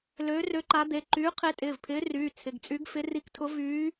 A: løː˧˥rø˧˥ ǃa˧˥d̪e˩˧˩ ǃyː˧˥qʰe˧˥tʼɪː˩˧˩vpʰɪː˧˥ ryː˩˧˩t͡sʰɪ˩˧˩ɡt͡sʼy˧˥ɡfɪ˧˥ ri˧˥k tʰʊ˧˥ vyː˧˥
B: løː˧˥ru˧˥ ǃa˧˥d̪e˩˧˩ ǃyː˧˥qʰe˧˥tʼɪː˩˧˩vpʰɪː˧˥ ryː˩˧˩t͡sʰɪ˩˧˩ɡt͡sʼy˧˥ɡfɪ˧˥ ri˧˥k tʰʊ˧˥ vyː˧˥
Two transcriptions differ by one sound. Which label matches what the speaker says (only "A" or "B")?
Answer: A